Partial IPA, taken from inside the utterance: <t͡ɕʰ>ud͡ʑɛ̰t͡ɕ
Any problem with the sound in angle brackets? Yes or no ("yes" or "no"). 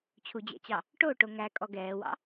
no